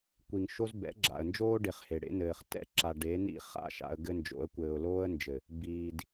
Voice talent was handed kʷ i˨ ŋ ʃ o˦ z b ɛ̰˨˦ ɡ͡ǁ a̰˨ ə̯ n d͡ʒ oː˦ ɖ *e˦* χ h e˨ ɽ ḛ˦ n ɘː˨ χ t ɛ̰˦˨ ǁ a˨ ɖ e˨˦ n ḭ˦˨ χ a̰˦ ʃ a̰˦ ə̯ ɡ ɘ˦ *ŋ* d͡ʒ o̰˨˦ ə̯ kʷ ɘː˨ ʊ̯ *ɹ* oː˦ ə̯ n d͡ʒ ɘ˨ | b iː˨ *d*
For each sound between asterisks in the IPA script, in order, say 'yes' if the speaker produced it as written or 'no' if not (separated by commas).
no, no, no, yes